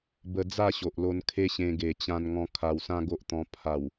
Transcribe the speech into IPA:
b ə˦ d͡z a˥˧ ɕ o˨ ʔ l o˧ n kʰ e˦ ɕ ẽ˧ ɡ e˨˩ t͡ɕ ã˧ n ŋ ɔ̃˧ kʰ a˧ w s ã˦ ɡ o˦ ʔ t̪ ɔ̃˧ pʰ a˨˩ w

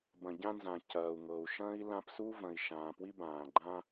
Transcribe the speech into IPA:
b ɐ̃˨ ɟ ã˧ n z ã˨ c ɐː˨ u̯ ŋ ɤ˨ u̯ ʃ ɐ̃ː˦ i̯ l ã˧ p s u˦ v ɐ̃˨ i̯ ʃ ãː˨ p w i˧ b ãː˨ ɡ͡ǃ ã˧

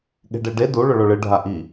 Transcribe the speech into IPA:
ɠ e̤ ɖ e ɖ e d u ɭ ɵ ɭ o ɭ ɨ ɖʱ a ʔ i

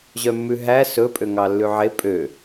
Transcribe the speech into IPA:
ʑ œ mː ʉ ɦ æ s ɵ pʼ ø ŋ ɑ lː ʉ ʕ e pʼ ø

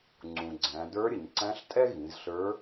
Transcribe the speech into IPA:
ŋ͡ǀ ũ˩ ɡ͡ǀ æ̃˩˧ d ə˞˧˥ ɾʲ ə˩ ɲ ǀ æ̃˧˥ ɬ tʼ ɛ˥ ɣ ĩ˩˧ z ɬ ə˞˧˥

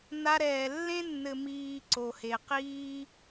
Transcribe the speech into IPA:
n a˧ ɾ ɛː˨ lː ẽ˦ nː ɘ˨ m iː˨ ǀ o˨ h e˨ q iː˦

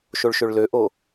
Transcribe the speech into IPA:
ʃ o ɭ ʃ ø ɭ l ø ʔ o

